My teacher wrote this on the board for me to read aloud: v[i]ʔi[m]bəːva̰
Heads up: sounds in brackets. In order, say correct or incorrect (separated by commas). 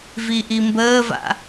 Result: correct, correct